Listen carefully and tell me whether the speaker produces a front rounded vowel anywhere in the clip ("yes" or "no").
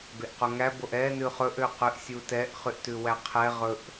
yes